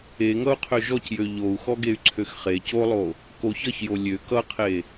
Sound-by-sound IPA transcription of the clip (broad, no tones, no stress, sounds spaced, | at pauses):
e ŋ ʌ u̯ qʰ ø ʒ ɔ c j ø ʎ o u̯ x ɔ ɡ e y̯ ǀʰ ø x χ e c o lˠ o | k o ç ʌ ç j o lʲ ø k ʌ qʰ e